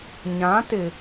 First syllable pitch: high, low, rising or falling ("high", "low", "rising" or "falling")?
rising